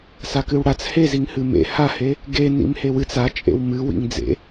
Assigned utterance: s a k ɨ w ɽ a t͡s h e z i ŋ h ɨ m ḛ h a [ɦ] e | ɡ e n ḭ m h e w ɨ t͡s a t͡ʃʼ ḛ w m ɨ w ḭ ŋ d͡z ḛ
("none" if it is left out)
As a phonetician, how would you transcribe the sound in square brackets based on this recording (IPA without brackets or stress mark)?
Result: h